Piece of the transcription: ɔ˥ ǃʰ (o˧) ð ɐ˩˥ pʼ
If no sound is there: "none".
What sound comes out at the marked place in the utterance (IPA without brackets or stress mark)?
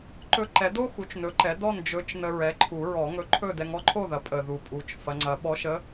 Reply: o˥˨